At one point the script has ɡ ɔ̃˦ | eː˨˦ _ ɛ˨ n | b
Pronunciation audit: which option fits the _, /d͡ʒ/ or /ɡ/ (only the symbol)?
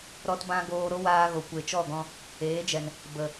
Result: d͡ʒ